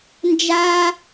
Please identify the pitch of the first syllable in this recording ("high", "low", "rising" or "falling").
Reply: high